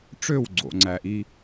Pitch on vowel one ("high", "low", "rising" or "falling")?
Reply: falling